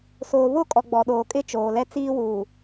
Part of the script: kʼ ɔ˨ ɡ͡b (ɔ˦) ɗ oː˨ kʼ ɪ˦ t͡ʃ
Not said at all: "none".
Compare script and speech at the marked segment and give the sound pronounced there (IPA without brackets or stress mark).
ɔ˨